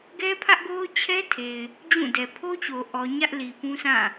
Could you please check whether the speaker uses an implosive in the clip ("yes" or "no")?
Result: no